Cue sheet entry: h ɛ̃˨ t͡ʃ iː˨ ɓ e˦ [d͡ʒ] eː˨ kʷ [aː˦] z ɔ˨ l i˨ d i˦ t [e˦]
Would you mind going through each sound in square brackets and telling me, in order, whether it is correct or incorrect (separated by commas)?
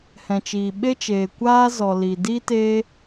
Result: incorrect, correct, incorrect